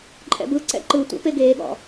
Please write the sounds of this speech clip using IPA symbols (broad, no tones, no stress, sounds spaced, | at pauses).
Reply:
ǃʼ ɛ̰ b ɯ ǀ ɛ̰ ǃ ɯ tʷ æ̰ p e ɡ eː ɠ ɔ̰